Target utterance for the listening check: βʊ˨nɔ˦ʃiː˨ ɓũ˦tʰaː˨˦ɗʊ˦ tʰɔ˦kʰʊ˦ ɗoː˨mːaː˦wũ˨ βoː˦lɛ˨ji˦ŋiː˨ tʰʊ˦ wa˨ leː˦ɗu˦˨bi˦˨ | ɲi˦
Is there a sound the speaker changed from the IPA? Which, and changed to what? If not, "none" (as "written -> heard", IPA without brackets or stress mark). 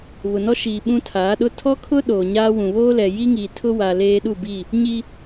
mː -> ɲ